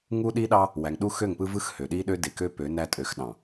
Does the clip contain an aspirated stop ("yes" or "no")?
no